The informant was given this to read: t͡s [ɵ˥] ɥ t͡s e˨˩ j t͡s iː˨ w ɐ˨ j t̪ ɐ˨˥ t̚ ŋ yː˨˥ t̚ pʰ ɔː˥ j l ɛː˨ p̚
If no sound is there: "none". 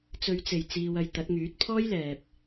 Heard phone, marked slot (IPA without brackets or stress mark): ɵ˨˧